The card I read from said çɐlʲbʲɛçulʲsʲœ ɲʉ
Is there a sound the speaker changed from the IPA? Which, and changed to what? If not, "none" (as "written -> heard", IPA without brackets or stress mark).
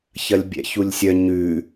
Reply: ɛ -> ɛ̰